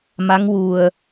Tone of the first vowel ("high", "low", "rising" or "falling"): rising